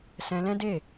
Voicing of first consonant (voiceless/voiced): voiceless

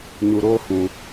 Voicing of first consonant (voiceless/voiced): voiced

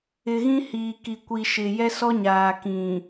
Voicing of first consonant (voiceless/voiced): voiced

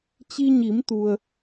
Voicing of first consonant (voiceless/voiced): voiceless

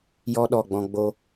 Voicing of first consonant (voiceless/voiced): voiced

